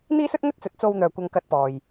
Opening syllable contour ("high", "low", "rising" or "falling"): high